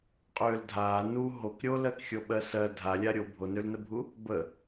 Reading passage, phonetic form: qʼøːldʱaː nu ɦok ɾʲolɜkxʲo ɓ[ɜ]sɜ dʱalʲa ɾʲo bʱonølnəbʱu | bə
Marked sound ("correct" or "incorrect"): correct